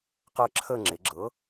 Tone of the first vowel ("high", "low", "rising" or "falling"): falling